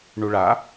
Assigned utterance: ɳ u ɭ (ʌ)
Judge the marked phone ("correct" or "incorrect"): incorrect